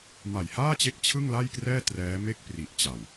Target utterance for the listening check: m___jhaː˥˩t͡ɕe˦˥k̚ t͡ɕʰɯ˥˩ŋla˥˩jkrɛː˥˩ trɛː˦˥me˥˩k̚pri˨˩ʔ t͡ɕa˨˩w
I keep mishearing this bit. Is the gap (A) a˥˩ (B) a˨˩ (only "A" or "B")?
B